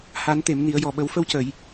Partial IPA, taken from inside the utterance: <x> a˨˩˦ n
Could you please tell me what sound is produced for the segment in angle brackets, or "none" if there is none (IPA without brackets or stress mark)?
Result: h